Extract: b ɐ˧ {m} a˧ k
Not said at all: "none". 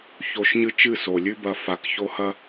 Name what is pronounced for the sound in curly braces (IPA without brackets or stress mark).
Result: f